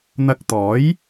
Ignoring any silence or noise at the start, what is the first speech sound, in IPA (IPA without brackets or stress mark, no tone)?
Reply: n̪